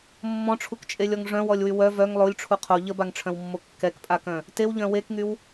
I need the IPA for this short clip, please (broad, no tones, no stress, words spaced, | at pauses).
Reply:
mːɔ̃ʈ͡ʂʰukt͡ʃʼelʲɔŋ ʐœ̃wɔlʲwy wœ vœŋ lˠolʲʈ͡ʂʰu qʰo ʎəbaŋʈ͡ʂʰœ̃wmːo kːɛkpʼakœ̃ | tewʎœ̃ wekŋyw